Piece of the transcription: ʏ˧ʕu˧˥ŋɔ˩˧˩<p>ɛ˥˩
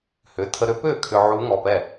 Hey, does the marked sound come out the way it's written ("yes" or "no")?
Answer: yes